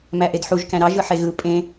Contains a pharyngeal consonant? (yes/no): yes